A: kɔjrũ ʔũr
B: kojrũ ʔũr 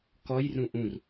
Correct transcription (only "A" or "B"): A